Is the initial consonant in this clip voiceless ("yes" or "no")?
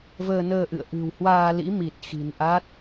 no